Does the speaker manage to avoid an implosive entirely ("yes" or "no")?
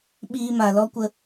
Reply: no